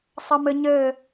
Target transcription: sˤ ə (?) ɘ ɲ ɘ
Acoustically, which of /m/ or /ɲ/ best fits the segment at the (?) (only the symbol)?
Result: m